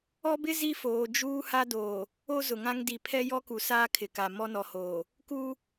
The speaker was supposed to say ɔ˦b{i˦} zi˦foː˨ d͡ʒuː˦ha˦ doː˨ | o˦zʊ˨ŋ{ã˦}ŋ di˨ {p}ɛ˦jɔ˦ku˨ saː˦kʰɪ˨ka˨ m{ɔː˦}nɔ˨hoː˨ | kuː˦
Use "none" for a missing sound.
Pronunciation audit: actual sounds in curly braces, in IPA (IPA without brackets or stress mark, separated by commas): ɪ˦, ã˦, pʰ, ɔ˦